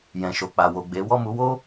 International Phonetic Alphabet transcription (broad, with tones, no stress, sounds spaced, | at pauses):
j ɛ̃˨ ʃ o˨ k͡p a˨ w o˨ ɡ͡b e˨˦ w ɔ˦˨ m u˨˦ w o˦